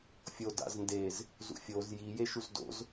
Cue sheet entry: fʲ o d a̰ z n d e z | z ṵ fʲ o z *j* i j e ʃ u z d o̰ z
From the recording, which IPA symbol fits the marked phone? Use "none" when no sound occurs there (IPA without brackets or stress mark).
j